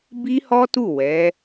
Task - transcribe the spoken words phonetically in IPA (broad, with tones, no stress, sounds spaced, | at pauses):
b i˦ h ɔ˦ t u˦˨ w ɛ˨˦